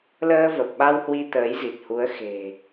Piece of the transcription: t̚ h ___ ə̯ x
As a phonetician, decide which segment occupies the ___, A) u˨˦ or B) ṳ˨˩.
A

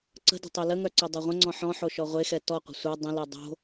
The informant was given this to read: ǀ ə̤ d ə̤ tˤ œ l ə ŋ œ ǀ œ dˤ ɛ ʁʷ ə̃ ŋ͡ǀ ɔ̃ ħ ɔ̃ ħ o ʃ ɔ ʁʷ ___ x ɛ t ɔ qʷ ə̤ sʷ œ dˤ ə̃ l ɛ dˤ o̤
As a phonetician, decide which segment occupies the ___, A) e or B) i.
A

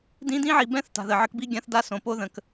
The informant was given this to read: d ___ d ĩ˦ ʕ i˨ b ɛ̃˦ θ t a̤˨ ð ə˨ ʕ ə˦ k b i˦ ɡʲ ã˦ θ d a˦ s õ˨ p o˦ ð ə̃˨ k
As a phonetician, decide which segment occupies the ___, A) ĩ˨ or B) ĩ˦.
B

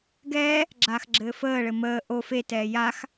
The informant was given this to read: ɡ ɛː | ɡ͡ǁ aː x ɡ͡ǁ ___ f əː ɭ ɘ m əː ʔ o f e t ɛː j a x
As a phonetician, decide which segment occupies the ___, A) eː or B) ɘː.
B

